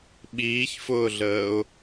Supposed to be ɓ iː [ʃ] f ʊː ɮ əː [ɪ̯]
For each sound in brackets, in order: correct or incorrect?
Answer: incorrect: ç, incorrect: ʊ̯

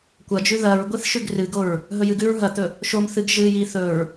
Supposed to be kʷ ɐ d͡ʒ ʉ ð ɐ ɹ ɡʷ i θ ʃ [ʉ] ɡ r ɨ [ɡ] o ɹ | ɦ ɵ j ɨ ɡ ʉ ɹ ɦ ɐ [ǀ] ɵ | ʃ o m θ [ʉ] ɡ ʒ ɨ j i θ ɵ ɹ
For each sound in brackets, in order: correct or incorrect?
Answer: correct, correct, incorrect: t̪, incorrect: ɨ

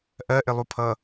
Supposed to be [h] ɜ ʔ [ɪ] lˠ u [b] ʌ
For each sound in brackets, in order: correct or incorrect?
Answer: incorrect: ʔ, correct, incorrect: pʰ

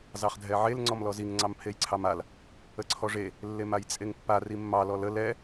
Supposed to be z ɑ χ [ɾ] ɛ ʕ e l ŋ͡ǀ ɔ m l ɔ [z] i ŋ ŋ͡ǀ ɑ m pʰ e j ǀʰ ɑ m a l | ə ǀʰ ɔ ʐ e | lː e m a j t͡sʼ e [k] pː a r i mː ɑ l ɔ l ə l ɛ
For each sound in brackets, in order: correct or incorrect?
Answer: incorrect: dʱ, correct, incorrect: ŋ

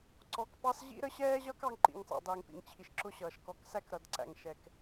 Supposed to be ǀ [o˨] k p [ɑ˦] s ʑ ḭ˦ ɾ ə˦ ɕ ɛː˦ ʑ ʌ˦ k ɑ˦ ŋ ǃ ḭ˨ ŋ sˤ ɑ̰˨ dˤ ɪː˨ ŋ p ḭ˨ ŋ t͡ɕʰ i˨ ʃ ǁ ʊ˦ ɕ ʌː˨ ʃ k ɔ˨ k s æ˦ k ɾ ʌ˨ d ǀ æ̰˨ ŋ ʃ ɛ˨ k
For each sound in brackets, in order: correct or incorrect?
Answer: incorrect: ɔ˨, correct

